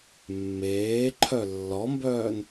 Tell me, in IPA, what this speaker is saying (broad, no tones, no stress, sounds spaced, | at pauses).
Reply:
mː eː ǃʰ œ lː ɔ m b œː n